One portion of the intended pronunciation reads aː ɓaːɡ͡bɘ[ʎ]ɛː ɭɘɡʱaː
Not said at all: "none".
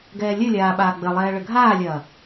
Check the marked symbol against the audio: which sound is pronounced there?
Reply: lˠ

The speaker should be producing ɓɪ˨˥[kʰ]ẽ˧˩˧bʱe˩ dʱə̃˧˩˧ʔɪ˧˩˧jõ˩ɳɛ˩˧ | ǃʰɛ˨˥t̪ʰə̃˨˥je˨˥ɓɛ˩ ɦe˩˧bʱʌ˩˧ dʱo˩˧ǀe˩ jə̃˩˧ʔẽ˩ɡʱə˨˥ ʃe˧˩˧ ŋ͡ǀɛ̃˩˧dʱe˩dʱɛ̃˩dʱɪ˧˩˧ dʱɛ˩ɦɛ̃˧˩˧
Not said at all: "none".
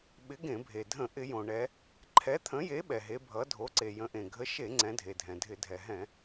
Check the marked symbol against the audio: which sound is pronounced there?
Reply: ɡ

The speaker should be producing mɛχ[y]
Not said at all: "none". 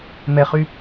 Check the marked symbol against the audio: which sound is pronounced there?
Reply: y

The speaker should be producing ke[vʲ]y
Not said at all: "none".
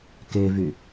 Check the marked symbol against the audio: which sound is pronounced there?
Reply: v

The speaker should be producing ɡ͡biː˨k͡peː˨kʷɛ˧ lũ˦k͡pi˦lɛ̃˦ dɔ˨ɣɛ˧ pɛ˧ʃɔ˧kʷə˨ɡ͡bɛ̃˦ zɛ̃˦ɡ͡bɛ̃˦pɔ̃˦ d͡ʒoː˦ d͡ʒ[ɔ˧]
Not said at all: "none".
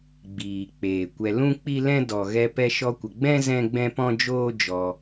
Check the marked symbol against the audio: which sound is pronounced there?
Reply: ɔ˧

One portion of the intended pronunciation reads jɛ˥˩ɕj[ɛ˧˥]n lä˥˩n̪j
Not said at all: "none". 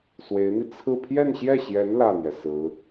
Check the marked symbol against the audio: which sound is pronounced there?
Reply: ɛ˧˥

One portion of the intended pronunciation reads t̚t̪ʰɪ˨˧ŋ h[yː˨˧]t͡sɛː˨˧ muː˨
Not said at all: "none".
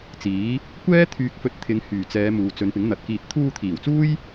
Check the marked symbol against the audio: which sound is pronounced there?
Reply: yː˨˩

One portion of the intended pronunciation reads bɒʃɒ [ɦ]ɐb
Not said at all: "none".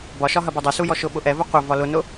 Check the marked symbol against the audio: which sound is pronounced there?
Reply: ɦ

